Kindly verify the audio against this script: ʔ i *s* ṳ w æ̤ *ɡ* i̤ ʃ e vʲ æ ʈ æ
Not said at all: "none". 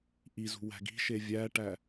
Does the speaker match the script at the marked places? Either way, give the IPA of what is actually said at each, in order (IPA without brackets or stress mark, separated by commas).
z, ɡ